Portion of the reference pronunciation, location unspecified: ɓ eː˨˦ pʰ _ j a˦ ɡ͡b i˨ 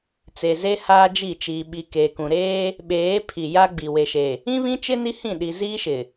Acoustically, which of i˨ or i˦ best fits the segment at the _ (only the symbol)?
i˨